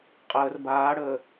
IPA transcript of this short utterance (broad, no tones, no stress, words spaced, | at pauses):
qʼəːr baːɽəː